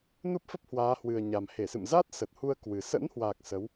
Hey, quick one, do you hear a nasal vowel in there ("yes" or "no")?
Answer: no